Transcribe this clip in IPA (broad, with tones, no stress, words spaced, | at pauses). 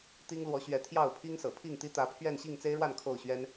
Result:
t̪i˦ŋ lwɔ˨˦ɕɥɛ˨˦ t̪ʰjɑ˥˨ʊ̯pʰi˦ŋsɤ̰˨˩ pʰi˥˨ŋt̪i˦ t̪ä˨˦pʰɥɛ˥˨n ɕi˥˨ŋt͡se˦ɪ̯ɻwa˥˨n kʰo˥˨ʊ̯ɕɥɛ˦n